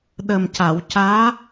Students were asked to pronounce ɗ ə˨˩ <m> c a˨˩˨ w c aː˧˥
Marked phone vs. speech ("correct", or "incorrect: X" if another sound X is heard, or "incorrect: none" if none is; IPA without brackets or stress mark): correct